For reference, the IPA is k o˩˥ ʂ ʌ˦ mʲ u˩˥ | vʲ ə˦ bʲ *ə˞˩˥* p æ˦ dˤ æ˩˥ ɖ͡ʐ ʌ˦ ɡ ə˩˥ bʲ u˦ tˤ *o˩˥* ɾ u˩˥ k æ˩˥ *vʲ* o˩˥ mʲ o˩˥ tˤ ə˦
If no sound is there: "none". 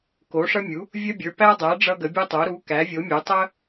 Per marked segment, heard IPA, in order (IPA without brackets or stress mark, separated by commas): ə˞˩˥, o˩˥, vʲ